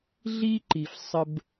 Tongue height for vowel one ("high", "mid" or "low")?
high